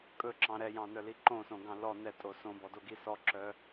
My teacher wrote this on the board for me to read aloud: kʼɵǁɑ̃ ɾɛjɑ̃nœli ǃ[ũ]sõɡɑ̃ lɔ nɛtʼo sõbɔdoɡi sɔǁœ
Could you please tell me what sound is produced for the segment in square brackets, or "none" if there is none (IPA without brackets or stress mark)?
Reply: õ